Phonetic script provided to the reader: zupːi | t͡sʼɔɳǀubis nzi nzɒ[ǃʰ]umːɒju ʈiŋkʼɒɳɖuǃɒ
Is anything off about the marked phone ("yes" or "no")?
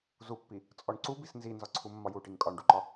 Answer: yes